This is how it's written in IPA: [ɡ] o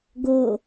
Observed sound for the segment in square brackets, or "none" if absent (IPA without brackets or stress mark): ɡ